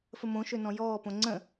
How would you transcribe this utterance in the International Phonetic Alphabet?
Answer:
f ə m õ ʃ ø n ɔ̃ j ɔː p õ ŋ͡ǀ ə̃

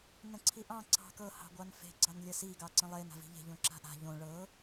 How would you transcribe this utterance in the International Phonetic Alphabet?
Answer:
n ə̃ ǀʰ i ʔ ɑ̃ ǀ ɑ̤ k ɤ h ɑ̤ ɡʷ ɑ n f e̤ ɡ͡ǀ ɑ n lʲ ə s i ɡ ɑ ǀ ə̃ lˠ e n a̤ v i̤ ʎ e̤ ʎ õ ǁ a̤ ʔ a̤ ʎ õ ɭ ɤ

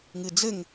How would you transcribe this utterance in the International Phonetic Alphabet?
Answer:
ŋ ɨ d͡z ɘ ŋ

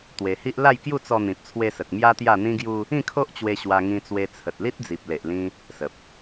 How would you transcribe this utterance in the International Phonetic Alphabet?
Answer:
t̪ w e˧ h i˦ ʔ l a˥˧ j k j u˥˧ t͡s ɔ˧ n̪ ĩ˨ p̚ t͡sʰ w e˧ s ə˨ k̚ m j a˦ t̪ j a˥˧ n̪ ĩ˦ ɡ j u˦ | ĩ˥˧ kʰ o˦ ʔ t͡ɕ w e˧ ɕ w a˧ ŋ ĩ˧ t͡s w e˧ t͡sʰ ə˨ t̚ l i˦ t̚ d͡z i˨ p̚ l e˨ ʔ l ĩ˧ | s ə˨ p̚

